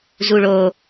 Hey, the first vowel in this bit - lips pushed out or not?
yes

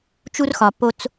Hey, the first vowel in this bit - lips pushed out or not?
yes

